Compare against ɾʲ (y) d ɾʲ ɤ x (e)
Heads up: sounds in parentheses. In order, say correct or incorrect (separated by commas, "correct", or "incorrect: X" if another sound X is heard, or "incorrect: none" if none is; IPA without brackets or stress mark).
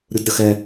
incorrect: u, incorrect: ɛ